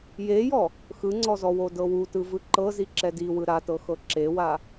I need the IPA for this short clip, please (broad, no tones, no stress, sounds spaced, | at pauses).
j e j ɔ | x ɯ ŋ͡ǀ ɔ z ɔ w o d ɤ w u t ɯ v ɯ ǃ ɤ z i ǁ ɛ d i w ɯ ɾ a t ɤ x ɤ ǁ e w a